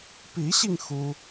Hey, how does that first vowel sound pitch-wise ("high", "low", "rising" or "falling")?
rising